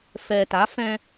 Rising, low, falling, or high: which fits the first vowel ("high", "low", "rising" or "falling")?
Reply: low